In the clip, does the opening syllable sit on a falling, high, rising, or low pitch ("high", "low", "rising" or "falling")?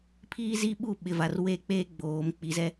high